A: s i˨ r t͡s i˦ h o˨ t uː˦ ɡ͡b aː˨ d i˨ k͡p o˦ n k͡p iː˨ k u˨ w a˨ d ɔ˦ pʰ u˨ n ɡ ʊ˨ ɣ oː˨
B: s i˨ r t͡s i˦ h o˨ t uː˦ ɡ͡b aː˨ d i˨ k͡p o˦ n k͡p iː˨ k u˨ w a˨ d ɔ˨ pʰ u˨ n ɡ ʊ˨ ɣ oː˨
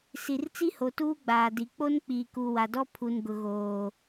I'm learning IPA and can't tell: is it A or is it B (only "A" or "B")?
A